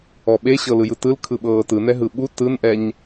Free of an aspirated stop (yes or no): no